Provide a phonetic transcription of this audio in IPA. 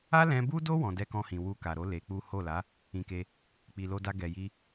a˦ l ɛ̃˧ b u˦ d o˦ w ɔ̃˧ d ɛ˦ k ɔ̃˦ h ĩ˧ w u˧ k a˨ ɾ o˨˦ l e˧ k͡p u˦ h o˦˨ l a˨˦ | ĩ˧ k e˧ | k͡p i˨ l o˧ d a˧ ɡ ɛ˨ j i˧

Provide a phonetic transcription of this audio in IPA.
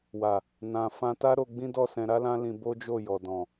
w a˨ | n ã˨ f ã˧ t a˦ ɾ o˧ ɡ͡b ĩ˦ d ɔ˦˨ s ɛ̃˧ ɾ a˦ l ã˦ l ĩ˧ b o˦ d͡ʒ o˦˨ j ɔ˨ d ɔ̃˨

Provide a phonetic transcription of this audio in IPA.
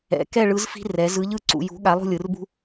ɛ̰˩˧ k ɛ˥˨ ɭ ɯ˨˥ z f i̤˦ r ɛ˩˧ z ɯ˨˥ ʎ ɯ˥˨ ǀ ṵ˩˧ j ṳ˨˥ ɠ a˨˥ lˠ ṳ˥˨ lʲ ɯ˩˧ r b ṳ˦

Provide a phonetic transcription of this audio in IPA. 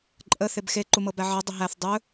ǃʼ ə θ e b x e ǃ u m ɤ b æ ʕ ɜ dˤ ə ɦ æ θ dˤ ɵ

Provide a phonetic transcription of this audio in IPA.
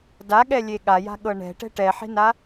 d a ɠ ɛ lʲ e ɠ a j a̤ ɠ ɤ ɳ ɛ̤ ʈ ɛ̤ ʈ ɛ ħ e̤ n a

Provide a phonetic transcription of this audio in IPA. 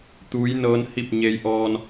t̪ uː˧˥ j n ɤː˧˥ n h i˥˨ p̚ ɲ e˧ j ʔ ɔː˧ n

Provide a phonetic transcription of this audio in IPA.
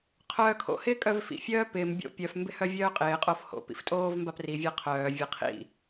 qʰ œː kʰ o̰ h ɪː kʼ œ v f ḭ fʲ œː p ɪː m bʲ o̰ pʲ œ f m b ɪ h œ vʲ œː qʼ ɪː qʼ o f h o̰ p ḭ f tʼ oː v m b a p r i vʲ a qʰ œː vʲ a qʰ ḭ

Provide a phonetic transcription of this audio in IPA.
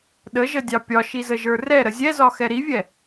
ɗ ə ʒ ə dʲ ɑ pʲ ɒ ʃ i z ə ʒ ə˞ r ɛ ɾ ə zʲ ɛ z ɒ x ɛ ɾ i vʲ ɛ

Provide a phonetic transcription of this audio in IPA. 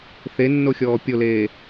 θ e nː o xʲ ɔː pʲ o l eː

